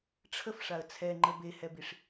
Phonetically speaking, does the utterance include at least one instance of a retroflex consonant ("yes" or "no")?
yes